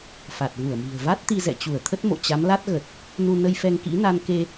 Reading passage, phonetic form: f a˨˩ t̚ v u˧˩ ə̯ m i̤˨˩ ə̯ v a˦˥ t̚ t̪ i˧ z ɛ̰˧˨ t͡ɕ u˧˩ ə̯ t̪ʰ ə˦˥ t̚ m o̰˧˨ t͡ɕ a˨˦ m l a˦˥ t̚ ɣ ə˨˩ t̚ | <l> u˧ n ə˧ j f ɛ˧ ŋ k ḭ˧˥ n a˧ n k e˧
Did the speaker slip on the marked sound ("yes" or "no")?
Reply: yes